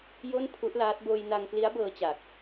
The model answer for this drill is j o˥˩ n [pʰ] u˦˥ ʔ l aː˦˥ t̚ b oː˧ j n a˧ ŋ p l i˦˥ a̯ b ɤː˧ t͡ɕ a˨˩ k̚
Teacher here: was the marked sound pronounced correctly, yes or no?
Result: yes